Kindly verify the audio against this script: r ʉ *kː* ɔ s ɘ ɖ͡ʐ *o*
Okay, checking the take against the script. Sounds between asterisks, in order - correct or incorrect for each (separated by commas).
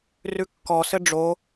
correct, correct